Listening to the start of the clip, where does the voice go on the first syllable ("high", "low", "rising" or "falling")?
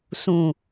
low